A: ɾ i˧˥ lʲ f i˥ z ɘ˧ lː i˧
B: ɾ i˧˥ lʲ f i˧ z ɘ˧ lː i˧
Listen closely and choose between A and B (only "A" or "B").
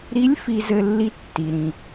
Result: B